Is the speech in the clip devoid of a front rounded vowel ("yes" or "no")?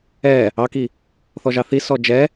yes